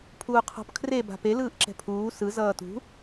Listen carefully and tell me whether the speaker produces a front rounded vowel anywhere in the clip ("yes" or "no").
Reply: no